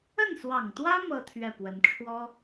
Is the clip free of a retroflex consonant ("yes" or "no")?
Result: no